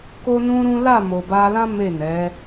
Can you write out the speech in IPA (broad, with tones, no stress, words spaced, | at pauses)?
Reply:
ko˦nũ˦ɾũ˦ la˦˨mo˨ba˧lã˦ me˦˨nɛ˨˦